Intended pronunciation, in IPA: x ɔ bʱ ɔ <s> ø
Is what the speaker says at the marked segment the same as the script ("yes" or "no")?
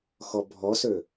yes